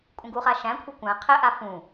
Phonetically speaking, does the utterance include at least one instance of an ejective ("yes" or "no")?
yes